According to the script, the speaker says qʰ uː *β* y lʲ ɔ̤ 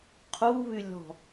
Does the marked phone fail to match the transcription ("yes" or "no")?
no